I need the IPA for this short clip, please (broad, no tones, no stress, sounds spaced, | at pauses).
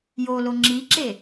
j o l o ŋ͡ǁ i ǁ e